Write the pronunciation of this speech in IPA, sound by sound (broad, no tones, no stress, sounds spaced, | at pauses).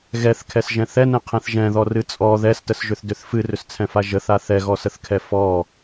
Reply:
ɣ ɛ θ kʰ ɛ s ʒ ɛ̃ θ ɛ n ɛ̃ qʰ ɛ̃ θ ʒ ɛ̃ ð ɔ r ɨ t͡sʼ ɔ ð ɛ s t ə s ʒ ʏ θ d ʏ θ f ɨ r ʏ s t͡sʰ ɛ̃ f a ʒ ə θ a θ ɛ ɣ ɔ s ə θ kʰ ɛ f ɔ